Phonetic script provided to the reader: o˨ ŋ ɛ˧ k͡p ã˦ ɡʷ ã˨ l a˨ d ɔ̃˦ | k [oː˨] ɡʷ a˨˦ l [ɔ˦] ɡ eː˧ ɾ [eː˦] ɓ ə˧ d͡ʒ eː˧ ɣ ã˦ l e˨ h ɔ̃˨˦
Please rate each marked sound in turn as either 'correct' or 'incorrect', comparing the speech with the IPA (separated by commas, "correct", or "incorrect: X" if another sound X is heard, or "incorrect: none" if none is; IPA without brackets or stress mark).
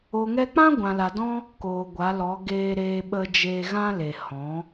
correct, incorrect: ɔ˨˦, incorrect: eː˧